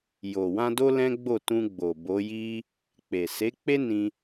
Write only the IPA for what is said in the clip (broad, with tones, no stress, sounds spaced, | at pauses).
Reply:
j o˨ w ã˧ d o˦ l ɛ̃˦ ɡ͡b o˦˨ t ũ˧ ɡ͡b o˨ b o˨˦ j i˦ | k͡p e˨ s e˨˦ k͡p e˦ n ĩ˦